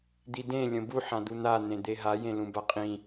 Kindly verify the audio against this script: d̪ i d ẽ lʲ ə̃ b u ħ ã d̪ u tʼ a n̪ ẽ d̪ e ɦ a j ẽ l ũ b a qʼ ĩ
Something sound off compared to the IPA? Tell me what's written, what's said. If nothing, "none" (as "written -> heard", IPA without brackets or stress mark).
tʼ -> n̪